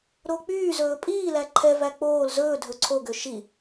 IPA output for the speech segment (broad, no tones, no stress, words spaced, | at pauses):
ɾok͡pyːzɵː pʼiːlæ ǃʰɛvæ k͡poːl zɵːdʱɵ ǀʰoɡø ʃi